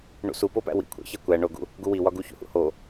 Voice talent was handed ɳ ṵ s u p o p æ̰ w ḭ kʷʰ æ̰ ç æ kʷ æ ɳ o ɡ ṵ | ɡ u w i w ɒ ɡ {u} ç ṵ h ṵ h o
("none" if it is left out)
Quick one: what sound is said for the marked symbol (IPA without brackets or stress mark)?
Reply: u